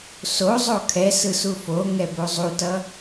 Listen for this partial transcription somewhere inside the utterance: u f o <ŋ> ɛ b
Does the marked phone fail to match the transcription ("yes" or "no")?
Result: no